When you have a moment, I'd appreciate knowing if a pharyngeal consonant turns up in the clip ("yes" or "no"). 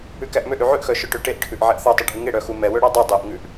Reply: yes